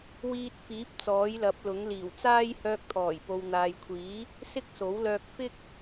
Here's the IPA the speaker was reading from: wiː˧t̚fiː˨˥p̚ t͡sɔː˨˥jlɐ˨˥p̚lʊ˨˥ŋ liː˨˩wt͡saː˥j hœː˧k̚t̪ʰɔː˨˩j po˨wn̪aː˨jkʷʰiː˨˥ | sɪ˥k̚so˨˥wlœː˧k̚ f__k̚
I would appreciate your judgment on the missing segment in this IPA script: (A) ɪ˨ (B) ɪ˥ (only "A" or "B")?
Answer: B